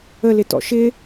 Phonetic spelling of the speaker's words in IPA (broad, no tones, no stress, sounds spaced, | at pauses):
ə l ɪ t ɔ̰ ʃ ɪ